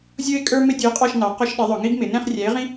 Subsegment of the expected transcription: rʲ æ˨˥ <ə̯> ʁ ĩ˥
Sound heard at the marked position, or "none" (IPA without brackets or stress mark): ɪ̯